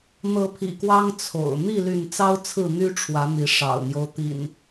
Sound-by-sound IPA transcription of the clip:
n̪ ɤ˨˦ pʰ ḭ˨˩ k w ɑ˦ ŋ t͡sʰ o̰˨˩ ʊ̯ n̪ i˥˨ l y˥˨ n t͡s ɑ˦ ʊ̯ t͡sʰ ɹ̩˥˨ n̪ y˦ ʈ͡ʂʰ w ä˨˦ n̪ i˨˦ ʂ ɑ̰˨˩ ʊ̯ n̪ j o˦ ʊ̯ t̪ ḭ˨˩ n

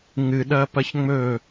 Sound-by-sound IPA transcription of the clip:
ŋ ɨ ɗ ɐː p ɐ ç ŋ͡m ɵ

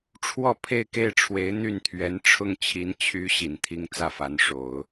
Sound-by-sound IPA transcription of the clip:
ʈ͡ʂʰ w ɔ˥˧ pʰ e˥˧ ɪ̯ k e˥˩ ɪ̯ ʈ͡ʂʰ w e˧˥ ɪ̯ n̪ y˥˩ n t̪ʰ ɥ ɛ˧˥ n ʈ͡ʂʰ ʊ˥˩ ŋ t͡ɕʰ i˧˥ n t͡ɕʰ y˧˥ ɕ i˨˩ n t̪ʰ i˥ ŋ t͡s ä˥˩ f a˧˥ n ʂ o˨˩˦ ʊ̯

